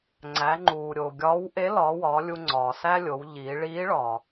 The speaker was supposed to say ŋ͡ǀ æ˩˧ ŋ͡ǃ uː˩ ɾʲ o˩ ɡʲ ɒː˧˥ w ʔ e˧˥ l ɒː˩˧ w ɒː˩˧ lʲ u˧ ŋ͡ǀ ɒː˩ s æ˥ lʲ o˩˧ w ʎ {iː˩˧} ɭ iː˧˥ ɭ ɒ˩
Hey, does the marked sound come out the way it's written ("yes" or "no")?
yes